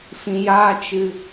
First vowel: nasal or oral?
nasal